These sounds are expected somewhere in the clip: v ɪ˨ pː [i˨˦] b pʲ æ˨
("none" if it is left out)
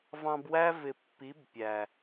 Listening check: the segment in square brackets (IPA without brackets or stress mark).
i˨˦